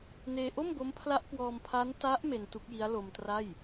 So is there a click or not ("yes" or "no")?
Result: no